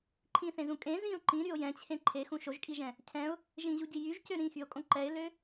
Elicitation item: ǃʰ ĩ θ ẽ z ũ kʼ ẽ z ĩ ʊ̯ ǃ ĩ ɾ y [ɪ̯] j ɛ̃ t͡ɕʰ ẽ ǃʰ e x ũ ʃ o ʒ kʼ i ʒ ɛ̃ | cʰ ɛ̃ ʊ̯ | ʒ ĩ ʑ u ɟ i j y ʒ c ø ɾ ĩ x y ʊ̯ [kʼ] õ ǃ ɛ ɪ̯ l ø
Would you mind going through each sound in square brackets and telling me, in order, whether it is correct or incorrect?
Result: incorrect, correct

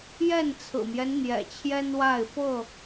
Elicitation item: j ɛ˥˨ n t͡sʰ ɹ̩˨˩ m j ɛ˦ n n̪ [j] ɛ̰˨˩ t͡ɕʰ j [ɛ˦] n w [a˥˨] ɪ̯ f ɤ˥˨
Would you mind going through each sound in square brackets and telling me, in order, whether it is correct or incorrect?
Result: correct, correct, correct

